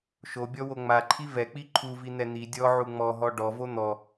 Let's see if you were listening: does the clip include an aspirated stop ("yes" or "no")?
yes